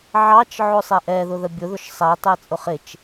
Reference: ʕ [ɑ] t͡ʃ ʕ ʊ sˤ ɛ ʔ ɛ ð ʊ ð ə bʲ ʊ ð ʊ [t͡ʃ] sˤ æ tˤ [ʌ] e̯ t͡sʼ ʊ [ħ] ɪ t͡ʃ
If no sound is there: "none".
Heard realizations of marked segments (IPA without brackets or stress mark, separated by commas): ɑ, ʃ, ə, χ